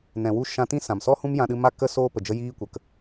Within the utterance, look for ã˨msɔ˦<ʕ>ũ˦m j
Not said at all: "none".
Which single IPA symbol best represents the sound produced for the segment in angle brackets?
h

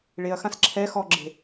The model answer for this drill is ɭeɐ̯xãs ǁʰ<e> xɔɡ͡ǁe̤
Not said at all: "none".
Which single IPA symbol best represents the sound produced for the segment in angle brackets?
ɛ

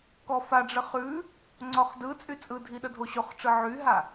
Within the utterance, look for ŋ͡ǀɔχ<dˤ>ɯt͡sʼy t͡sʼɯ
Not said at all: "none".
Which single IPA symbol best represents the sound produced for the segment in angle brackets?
d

